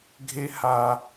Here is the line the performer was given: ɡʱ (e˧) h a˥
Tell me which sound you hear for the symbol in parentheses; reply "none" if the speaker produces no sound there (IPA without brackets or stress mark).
e˥